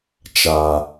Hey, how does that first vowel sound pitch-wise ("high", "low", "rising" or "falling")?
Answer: low